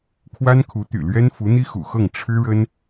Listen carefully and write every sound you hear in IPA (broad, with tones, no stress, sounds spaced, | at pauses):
kʰ w a˥ n kʰ u˧˥ t̪ y̰˨˩ l ɥ ɛ˥ n f u˧˥ n̪ i˥ x ṵ˨˩ x ɤ˥˩ ŋ ʈ͡ʂʰ ɻ̩˥ ɻ ə˥ n